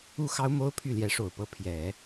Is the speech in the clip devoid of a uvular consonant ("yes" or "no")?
yes